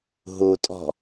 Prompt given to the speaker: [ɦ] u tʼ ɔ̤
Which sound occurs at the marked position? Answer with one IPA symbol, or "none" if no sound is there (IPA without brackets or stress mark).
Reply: ɦ